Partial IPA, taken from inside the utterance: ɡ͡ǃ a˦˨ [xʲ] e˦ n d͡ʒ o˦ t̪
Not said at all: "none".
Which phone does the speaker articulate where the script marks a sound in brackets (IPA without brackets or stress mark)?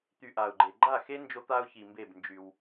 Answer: x